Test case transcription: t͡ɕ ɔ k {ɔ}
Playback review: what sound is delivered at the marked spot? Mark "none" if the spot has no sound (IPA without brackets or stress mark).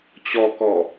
ɔ